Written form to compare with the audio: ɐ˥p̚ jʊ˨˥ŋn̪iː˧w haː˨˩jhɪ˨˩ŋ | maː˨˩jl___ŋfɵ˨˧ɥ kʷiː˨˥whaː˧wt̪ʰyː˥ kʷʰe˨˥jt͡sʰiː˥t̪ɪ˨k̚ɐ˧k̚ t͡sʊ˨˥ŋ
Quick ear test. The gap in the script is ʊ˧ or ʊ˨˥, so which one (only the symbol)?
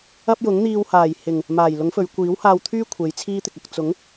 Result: ʊ˨˥